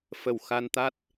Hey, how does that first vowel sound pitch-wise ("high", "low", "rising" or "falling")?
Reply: low